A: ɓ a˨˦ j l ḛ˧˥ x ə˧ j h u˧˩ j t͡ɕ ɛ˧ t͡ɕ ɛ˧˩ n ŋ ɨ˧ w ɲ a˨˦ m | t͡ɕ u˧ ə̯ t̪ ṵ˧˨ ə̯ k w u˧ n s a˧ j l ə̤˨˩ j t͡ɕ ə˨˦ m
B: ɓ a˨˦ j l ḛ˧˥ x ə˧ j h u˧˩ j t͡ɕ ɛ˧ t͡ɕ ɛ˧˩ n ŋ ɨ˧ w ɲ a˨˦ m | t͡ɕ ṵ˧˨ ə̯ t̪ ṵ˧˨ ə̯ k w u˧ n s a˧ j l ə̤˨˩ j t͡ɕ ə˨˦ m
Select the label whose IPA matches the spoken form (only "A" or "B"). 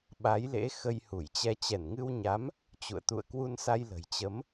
B